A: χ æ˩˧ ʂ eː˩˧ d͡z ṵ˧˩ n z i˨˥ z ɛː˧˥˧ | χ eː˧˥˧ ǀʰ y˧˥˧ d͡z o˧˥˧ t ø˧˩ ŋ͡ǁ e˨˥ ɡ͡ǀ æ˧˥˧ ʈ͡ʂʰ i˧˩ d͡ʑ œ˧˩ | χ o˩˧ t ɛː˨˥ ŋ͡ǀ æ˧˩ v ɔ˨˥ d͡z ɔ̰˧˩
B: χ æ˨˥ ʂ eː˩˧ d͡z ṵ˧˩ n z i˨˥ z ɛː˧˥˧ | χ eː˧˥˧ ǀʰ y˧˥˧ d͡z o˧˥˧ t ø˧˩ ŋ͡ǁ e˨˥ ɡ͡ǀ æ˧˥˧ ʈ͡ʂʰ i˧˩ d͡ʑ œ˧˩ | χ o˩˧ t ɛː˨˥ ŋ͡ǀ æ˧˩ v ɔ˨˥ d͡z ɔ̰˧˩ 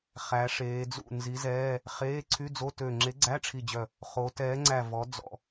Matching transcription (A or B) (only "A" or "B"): A